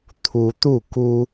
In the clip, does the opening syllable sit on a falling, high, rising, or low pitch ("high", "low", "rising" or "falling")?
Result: rising